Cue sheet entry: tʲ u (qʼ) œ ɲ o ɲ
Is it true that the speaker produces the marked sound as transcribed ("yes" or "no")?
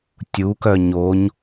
no